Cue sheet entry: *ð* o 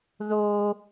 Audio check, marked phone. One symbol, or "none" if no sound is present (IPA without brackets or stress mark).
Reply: ð